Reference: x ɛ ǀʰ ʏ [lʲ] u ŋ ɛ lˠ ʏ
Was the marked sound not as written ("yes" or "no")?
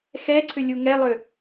no